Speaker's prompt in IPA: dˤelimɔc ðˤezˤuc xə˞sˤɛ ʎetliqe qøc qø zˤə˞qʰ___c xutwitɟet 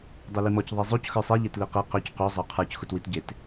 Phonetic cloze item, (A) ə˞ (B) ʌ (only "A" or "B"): A